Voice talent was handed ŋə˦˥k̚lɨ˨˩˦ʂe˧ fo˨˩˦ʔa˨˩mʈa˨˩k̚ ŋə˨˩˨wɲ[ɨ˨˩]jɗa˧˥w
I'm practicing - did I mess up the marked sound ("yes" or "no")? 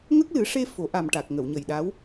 yes